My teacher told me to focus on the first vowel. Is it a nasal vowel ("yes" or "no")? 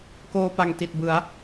no